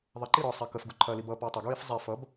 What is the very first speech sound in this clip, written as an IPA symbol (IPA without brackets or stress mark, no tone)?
ðˤ